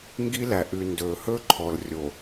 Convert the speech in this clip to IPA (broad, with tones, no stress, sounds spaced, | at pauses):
ŋ ɡ i˦ l æ˨ ʔ ʉ˨ n d ɵː˨ h ɵ˦ ǃʰ ɔ˨ l rʲ o˨